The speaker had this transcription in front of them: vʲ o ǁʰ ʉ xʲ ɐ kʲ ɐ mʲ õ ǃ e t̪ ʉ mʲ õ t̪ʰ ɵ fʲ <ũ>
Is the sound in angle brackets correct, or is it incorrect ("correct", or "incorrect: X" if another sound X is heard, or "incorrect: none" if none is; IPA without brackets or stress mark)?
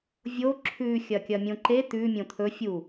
incorrect: u